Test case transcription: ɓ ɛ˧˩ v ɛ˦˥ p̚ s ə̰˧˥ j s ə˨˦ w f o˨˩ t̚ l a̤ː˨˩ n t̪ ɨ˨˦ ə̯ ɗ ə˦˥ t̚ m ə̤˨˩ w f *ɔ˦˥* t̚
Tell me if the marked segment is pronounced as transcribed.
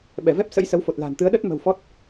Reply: yes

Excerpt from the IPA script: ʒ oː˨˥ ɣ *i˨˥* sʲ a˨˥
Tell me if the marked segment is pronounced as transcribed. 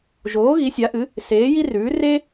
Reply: yes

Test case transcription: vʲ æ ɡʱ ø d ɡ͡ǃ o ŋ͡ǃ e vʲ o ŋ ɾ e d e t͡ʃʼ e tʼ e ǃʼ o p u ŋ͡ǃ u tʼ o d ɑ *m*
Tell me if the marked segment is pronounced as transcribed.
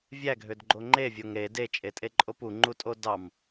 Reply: yes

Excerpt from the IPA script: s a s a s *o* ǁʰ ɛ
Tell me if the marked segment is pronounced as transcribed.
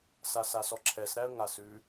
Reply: no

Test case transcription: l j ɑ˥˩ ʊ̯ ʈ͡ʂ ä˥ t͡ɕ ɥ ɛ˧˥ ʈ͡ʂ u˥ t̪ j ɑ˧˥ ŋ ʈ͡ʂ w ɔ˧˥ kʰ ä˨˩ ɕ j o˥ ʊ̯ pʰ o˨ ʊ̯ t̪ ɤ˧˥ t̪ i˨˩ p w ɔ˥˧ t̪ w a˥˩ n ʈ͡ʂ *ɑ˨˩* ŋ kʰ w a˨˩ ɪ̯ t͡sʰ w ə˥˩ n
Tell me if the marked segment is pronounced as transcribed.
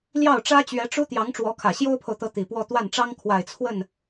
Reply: no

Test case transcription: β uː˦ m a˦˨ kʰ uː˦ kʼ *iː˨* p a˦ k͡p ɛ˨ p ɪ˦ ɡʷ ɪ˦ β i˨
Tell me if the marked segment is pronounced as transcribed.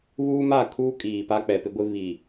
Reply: yes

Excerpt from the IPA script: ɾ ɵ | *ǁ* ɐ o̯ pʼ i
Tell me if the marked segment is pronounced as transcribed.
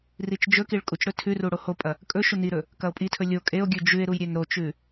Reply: no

